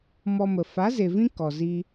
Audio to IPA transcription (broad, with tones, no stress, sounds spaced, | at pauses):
m ɔ˧ m ə˨ f a˨˦ z e˨ v ĩ˧ k ɔ˨ z i˧